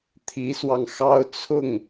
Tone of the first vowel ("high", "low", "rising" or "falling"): rising